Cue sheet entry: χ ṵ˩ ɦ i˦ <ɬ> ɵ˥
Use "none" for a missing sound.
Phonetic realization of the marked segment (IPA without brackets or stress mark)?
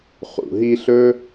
ɬ